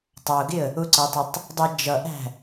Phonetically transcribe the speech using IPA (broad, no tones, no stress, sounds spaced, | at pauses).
tˤ ɑ ʊ̯ ɡ ɪ ə̯ | ʊ ǀ ʌ ɪ̯ tˤ ɛ tˤ | dˤ ʌ d͡ʒ ʌ ʔ æ̤